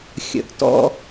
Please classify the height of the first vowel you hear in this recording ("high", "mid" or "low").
mid